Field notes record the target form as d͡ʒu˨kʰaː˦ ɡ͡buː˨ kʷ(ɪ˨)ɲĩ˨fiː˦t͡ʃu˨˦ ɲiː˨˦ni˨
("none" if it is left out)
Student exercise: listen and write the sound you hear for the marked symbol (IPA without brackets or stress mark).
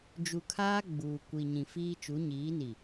i˨